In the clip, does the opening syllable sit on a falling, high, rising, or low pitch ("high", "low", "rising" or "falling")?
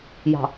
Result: low